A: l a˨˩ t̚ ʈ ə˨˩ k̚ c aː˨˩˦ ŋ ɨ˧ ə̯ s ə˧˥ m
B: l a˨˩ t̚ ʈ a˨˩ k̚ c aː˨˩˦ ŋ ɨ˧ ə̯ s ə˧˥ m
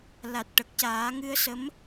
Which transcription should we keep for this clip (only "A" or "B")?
A